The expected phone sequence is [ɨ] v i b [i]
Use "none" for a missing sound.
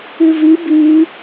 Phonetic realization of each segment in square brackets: ɨ, i

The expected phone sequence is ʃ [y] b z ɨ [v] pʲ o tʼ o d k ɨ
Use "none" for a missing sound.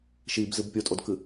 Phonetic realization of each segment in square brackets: i, b

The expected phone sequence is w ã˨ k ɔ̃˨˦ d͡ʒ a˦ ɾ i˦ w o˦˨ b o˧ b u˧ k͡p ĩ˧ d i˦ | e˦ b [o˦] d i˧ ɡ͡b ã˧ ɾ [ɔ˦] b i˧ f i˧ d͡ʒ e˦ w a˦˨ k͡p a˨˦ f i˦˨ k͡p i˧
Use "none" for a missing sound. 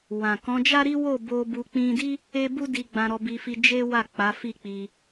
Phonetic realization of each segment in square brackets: u˦, ɔ˧

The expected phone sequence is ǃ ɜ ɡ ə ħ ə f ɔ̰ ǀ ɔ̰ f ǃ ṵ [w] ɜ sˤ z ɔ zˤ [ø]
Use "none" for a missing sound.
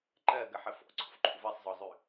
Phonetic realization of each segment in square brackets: v, ʉ

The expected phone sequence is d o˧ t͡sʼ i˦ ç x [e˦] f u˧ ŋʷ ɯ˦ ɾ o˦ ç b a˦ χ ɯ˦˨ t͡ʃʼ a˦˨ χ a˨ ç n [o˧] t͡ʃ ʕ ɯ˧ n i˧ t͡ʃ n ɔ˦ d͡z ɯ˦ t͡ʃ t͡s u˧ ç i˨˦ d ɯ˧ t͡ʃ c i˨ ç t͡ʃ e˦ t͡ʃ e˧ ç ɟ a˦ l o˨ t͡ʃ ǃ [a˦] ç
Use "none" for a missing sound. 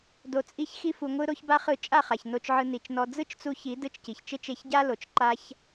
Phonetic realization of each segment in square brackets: i˦, o˧, a˦

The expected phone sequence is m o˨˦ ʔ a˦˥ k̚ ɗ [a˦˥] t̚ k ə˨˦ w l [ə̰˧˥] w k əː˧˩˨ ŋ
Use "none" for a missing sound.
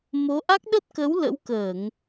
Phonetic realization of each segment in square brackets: ə˦˥, ə̰˧˥

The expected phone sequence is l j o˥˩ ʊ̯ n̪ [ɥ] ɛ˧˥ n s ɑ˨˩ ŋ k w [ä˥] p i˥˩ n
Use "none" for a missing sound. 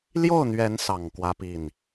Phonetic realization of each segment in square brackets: ɥ, ä˥

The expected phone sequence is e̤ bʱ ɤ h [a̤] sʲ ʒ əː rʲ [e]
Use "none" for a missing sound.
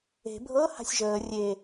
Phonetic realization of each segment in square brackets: a̤, e

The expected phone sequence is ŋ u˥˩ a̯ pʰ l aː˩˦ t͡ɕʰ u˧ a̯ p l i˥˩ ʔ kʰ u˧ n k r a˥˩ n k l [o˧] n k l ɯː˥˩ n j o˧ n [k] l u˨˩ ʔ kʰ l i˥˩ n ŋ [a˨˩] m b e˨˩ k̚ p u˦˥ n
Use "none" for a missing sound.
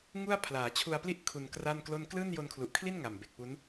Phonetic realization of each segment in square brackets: o˥˩, kʰ, a˨˩

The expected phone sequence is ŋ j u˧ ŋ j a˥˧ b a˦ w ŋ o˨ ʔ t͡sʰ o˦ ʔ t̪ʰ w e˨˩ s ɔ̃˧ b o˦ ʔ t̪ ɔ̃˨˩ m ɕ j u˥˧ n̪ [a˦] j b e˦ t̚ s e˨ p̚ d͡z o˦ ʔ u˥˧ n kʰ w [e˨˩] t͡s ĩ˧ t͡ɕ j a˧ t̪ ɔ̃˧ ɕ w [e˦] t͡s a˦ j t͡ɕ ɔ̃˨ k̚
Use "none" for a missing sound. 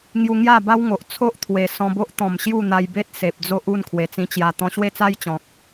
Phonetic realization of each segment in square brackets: a˧, e˨˩, e˦

